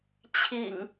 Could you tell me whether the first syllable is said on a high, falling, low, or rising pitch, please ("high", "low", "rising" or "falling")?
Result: low